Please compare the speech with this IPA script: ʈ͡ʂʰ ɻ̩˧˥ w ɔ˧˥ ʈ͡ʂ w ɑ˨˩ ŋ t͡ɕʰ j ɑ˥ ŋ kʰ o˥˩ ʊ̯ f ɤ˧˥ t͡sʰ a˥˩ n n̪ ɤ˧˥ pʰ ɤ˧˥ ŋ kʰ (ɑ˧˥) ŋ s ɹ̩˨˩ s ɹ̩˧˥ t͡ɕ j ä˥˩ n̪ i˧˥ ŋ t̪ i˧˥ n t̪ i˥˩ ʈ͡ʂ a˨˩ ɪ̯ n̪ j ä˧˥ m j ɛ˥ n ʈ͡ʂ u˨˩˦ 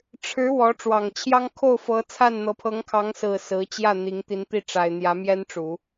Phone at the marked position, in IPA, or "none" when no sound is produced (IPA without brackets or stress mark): ɑ˧˥